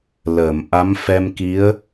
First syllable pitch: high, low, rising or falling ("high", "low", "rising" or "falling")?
low